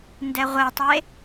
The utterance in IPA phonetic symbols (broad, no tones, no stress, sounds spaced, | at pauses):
n d ɛ ʁʷ ɛ tˤ e